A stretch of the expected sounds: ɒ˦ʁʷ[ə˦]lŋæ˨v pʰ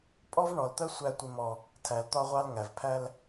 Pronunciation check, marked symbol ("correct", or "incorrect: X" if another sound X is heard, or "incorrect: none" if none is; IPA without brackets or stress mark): incorrect: ɑ˦